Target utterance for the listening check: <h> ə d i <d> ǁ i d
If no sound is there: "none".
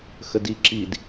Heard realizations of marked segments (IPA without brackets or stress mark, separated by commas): x, none